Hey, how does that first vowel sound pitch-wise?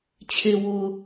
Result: low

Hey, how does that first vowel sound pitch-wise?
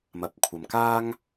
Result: low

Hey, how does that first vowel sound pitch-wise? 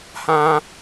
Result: high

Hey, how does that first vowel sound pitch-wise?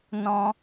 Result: high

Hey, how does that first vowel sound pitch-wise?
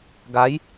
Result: rising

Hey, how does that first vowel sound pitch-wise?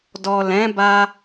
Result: low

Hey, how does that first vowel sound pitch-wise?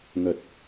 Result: low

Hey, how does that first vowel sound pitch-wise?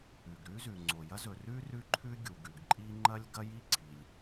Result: low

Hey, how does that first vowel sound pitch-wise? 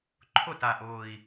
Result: falling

